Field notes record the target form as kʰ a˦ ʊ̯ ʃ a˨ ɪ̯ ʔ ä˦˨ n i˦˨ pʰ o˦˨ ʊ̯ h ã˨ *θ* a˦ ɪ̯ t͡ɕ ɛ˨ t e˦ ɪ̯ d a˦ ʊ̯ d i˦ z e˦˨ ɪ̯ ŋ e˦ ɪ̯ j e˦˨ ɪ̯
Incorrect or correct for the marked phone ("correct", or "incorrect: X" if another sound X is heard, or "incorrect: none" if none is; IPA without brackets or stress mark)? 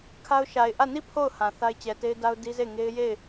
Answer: correct